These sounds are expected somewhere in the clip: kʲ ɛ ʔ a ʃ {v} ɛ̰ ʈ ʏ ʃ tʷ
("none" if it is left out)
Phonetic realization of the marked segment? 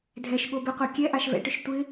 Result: v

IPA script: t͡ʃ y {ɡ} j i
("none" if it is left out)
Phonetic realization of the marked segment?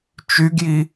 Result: ɡ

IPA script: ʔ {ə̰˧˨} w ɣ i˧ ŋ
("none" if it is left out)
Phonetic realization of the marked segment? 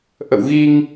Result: ə̰˧˨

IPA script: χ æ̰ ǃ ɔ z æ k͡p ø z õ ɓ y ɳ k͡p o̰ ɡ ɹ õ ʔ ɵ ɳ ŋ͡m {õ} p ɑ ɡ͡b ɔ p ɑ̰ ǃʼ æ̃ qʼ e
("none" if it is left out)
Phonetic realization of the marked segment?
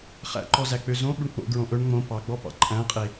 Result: õ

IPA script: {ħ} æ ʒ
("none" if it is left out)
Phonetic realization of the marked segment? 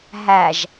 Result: ɦ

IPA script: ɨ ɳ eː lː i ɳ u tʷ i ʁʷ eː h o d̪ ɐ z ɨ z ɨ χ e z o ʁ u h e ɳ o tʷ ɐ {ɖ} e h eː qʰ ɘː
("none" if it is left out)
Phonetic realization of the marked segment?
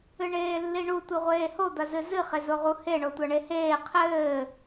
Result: ɳ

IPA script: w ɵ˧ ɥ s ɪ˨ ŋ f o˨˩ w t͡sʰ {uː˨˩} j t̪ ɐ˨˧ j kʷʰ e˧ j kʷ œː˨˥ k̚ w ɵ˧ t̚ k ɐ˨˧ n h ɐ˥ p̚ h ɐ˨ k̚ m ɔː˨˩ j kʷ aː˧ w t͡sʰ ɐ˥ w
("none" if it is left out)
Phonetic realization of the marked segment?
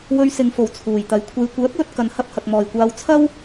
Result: uː˨˩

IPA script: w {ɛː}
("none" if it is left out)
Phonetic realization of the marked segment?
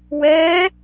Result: ɛː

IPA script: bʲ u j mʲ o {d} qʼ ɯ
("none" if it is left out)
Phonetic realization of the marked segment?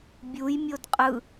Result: d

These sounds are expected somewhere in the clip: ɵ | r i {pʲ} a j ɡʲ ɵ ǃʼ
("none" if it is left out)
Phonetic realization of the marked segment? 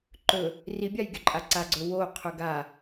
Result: bʲ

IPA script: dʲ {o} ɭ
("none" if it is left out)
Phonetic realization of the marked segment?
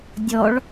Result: ɔ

